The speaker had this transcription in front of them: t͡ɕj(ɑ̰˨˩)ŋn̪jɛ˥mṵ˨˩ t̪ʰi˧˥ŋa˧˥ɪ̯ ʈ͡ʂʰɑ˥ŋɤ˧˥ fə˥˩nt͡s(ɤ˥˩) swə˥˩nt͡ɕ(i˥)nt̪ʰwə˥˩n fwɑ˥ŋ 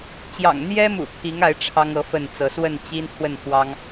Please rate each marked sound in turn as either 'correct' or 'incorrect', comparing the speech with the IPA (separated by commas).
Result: correct, incorrect, correct